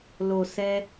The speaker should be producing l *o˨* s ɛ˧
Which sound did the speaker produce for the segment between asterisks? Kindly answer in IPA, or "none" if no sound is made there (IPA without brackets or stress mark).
o˨